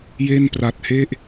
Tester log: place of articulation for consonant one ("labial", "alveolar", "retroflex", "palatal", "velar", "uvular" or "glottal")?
palatal